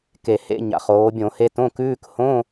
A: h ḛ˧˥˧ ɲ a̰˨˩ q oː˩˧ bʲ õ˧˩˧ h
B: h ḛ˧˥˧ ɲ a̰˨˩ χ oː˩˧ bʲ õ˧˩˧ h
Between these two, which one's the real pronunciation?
B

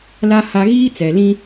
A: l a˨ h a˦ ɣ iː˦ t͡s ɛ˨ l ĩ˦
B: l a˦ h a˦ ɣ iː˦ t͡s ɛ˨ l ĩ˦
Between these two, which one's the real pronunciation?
B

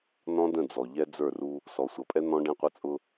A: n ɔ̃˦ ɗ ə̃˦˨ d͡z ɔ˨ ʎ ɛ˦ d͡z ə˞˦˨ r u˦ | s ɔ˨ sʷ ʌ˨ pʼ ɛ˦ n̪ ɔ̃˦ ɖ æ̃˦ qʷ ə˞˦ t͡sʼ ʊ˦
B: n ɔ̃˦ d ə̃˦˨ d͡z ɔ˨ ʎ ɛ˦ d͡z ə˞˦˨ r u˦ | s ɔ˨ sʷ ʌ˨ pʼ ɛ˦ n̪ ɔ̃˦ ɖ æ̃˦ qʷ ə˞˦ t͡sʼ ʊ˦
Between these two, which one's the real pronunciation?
B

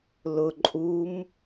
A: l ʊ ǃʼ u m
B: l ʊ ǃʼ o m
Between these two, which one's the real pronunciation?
A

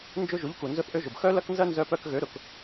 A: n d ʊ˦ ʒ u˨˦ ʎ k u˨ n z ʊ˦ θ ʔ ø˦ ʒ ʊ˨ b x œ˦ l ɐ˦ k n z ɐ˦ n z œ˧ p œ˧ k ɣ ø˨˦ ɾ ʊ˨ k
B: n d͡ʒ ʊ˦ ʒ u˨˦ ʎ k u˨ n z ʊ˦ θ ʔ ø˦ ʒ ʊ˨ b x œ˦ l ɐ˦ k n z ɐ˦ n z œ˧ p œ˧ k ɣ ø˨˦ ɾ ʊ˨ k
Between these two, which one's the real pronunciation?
B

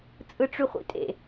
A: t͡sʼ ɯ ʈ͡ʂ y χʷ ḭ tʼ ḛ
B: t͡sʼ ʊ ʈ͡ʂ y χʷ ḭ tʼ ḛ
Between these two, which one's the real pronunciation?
A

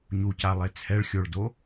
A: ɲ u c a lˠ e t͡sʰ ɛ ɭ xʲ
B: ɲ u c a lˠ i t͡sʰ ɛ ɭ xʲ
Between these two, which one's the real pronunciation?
A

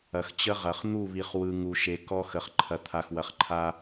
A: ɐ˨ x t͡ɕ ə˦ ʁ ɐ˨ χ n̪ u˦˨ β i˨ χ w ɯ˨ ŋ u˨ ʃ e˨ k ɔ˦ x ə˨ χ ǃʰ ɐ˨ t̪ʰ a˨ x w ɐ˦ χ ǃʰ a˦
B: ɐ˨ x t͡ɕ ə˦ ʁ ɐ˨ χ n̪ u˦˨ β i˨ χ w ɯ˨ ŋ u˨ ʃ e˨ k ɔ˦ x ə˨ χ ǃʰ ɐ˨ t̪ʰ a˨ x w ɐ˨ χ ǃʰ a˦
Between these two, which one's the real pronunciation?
B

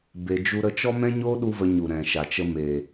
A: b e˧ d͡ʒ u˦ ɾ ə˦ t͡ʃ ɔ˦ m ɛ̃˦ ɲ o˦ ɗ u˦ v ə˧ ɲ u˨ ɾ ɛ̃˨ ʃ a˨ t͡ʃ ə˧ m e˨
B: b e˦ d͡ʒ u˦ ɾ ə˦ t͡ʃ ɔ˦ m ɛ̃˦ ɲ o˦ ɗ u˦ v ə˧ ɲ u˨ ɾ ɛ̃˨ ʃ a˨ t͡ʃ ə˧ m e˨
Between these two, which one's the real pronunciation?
A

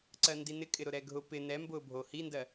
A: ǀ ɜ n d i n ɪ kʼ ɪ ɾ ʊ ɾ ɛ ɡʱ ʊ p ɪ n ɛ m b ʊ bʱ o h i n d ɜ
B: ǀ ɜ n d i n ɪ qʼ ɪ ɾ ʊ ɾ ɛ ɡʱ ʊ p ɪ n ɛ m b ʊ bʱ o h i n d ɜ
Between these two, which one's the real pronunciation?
A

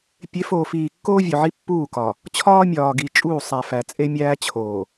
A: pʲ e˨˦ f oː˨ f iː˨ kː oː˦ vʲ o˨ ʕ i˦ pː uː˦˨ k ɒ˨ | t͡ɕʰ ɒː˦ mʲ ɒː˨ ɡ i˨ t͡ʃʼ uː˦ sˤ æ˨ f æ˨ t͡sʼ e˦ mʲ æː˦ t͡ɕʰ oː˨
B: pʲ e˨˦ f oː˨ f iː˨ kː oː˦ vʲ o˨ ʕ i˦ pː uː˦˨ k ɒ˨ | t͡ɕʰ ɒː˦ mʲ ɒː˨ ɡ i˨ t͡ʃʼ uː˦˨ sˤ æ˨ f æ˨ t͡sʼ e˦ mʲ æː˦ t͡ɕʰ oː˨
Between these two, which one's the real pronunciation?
B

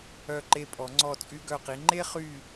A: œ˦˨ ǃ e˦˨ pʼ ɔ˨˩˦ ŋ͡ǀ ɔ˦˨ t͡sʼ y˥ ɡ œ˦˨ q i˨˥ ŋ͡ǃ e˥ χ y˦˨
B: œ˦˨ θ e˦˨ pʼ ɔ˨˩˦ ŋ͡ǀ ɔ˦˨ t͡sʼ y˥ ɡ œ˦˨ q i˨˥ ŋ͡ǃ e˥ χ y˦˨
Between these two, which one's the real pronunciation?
A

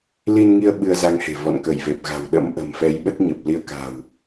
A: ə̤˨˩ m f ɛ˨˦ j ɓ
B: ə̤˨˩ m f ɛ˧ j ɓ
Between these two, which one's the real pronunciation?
A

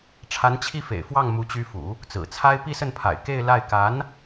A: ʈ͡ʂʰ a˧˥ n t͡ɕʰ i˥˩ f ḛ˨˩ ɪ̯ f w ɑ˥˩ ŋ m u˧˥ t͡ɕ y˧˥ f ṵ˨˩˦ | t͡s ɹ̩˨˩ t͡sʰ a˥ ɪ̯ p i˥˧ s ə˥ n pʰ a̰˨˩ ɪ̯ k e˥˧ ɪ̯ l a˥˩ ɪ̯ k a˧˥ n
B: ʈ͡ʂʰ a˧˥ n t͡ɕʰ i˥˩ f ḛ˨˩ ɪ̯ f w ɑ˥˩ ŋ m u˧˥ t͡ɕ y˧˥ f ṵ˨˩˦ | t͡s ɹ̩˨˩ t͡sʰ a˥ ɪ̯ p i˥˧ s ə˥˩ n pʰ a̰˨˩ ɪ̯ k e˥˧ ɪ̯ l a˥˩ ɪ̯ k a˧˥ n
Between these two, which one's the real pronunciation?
B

